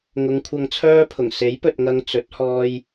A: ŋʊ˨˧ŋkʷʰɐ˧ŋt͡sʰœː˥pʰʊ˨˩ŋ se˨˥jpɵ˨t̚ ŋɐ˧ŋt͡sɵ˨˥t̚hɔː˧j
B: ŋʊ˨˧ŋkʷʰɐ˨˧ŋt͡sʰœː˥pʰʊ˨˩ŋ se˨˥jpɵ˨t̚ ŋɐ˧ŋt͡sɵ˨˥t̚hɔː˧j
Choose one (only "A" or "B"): A